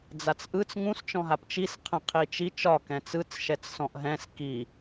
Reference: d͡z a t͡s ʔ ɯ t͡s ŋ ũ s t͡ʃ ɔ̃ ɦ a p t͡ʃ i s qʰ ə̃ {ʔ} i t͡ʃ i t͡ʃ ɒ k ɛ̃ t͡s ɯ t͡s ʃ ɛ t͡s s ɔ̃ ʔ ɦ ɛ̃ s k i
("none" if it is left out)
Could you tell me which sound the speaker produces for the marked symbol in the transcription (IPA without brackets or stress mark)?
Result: qʰ